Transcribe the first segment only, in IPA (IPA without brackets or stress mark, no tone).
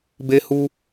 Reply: b